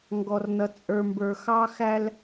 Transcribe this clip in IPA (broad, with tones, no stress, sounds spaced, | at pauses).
ŋ ɡ ɔ˨ r n ʌ˨ t͡sʼ ə˞˨ m b ə˞˨ x ɑ˦ x æ˦ l